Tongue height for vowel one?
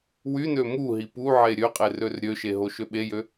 high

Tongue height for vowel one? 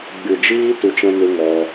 high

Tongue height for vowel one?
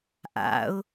low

